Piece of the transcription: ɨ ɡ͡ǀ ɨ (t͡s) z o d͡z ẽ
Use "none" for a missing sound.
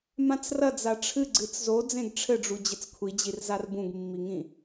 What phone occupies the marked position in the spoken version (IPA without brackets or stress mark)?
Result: t͡s